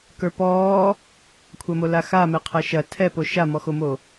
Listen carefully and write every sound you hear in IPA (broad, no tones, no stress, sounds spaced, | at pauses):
k ə˞ p ɔː | kʷʰ ɐ m o l a x a m ɛ qʰ ɐ ʃ ɐ tʰ ɛ p o ʃ a m ɔ x o m o